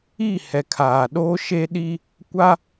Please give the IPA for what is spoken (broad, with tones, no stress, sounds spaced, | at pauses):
i˦˨ h ɛ˨ kʰ aː˨ ɗ oː˦ ʃ e˦ ɗ i˦ | kʷ a˦